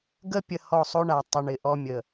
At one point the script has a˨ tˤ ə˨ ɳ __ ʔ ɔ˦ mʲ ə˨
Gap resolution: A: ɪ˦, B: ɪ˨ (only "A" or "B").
B